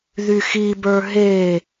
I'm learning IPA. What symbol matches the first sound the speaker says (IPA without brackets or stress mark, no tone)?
ð